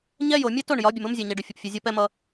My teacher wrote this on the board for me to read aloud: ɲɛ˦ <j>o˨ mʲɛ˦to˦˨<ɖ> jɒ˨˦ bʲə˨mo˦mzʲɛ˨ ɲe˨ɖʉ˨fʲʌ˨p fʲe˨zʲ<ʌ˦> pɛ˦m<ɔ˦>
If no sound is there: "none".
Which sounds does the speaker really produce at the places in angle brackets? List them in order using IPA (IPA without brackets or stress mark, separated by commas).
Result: j, ɳ, ɒ˦, ʌ˦